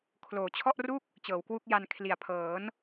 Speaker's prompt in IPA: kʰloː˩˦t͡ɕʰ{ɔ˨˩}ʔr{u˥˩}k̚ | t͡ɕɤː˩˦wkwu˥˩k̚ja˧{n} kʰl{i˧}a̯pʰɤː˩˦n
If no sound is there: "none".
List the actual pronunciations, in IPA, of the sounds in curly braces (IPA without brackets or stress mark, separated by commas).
ɔ˥˩, u˥˩, n, i˨˩